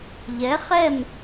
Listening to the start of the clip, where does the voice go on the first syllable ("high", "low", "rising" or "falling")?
rising